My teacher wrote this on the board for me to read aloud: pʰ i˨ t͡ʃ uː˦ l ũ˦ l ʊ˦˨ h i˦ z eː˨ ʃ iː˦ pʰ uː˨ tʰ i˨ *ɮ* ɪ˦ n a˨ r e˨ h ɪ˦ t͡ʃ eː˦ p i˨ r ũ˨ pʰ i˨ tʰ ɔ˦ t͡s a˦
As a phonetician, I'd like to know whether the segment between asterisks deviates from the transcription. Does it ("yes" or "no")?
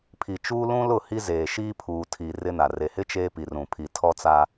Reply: yes